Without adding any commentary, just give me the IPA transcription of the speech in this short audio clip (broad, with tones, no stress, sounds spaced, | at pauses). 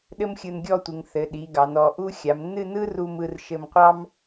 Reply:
ɗ ɘ˥ m xʲ ɯ˧ n ɡʲ ɔ˥˧ tʷ ɯ˩˧ ŋ θ ɘ˩˧ ɗ i˩˧ ɡ ɑ˩˧ n ɔ˩˧ ʔ u˥ xʲ a˩˧ m nː ɨ˥˧ n ɯ˥ r u˧ m ɯ˧ r ʃ ɘ˧ m qʷ ɑ˥ m